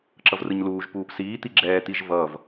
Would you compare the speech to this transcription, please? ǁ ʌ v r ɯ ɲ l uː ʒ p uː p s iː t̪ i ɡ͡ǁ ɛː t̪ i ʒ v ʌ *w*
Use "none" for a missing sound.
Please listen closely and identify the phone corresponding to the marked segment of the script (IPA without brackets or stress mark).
v